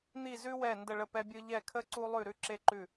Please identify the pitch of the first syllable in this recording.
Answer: falling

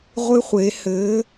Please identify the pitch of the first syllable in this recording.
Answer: high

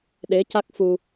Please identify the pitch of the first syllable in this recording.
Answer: rising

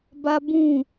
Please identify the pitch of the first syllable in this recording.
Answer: high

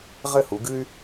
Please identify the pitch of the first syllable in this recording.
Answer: falling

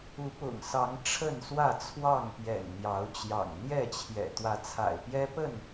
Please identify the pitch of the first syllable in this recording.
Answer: rising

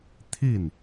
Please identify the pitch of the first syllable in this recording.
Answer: falling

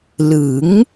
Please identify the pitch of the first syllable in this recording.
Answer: rising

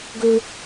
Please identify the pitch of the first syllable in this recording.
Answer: high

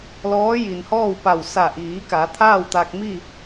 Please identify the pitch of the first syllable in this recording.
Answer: rising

